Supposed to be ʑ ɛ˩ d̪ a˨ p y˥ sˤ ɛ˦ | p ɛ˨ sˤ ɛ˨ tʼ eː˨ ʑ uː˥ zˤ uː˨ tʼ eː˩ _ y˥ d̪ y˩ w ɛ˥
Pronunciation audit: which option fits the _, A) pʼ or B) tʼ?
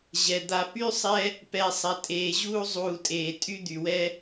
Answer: B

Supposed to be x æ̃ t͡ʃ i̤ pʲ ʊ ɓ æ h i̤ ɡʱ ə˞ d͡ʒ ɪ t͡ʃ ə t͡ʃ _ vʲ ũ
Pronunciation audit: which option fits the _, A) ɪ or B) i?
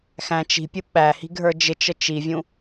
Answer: B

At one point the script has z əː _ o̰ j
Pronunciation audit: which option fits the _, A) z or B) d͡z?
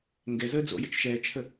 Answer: B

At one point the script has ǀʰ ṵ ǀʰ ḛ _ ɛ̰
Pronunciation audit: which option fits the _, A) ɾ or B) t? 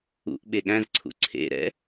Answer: A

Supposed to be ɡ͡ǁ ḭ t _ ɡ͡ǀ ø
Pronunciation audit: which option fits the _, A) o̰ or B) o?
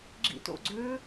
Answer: A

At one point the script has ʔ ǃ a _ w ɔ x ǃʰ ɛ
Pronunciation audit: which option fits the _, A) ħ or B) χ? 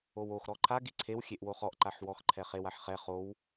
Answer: A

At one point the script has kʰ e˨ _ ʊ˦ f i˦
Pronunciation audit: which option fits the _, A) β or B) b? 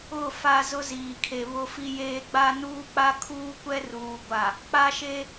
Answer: A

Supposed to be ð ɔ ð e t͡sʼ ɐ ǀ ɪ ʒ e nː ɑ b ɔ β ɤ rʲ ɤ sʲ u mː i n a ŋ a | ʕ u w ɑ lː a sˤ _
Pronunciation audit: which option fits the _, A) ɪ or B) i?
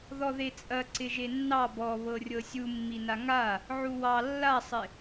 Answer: A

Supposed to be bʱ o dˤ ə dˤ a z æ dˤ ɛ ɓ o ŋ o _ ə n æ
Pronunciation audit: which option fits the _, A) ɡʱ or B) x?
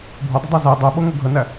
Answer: A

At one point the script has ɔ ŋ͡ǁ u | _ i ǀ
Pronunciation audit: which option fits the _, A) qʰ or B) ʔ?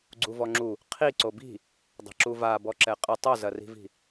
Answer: A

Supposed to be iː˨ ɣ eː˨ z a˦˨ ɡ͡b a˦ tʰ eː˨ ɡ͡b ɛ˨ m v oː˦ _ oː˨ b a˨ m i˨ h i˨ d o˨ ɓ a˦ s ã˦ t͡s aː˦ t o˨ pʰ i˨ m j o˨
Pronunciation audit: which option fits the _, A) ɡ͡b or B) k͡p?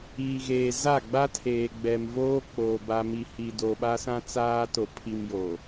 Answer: B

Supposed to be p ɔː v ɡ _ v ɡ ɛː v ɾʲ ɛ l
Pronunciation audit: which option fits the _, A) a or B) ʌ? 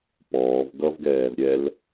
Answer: B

